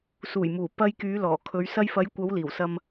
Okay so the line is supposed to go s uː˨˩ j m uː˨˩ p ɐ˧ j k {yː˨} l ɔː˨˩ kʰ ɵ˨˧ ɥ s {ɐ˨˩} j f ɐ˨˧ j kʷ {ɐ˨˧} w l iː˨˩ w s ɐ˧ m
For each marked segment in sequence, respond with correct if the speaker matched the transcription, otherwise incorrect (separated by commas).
incorrect, incorrect, correct